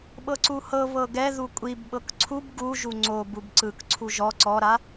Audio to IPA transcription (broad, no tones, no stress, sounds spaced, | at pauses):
ɓ ɤ ǀ u h ɤ β ɤ ɡ ɛ ð u kʷʼ i b ɓ ɤ k ǀʰ u b ɡ u ʒ u ŋ͡ǀ o b u b ǀ ɯ k ǀʰ u ʒ ɔ ǀ ɔ ɾ a